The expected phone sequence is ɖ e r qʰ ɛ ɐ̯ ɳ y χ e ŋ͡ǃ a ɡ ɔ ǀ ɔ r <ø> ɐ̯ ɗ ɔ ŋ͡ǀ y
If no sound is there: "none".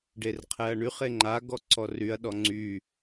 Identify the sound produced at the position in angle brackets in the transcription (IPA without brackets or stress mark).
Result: y